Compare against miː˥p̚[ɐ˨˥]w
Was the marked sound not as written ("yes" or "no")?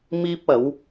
no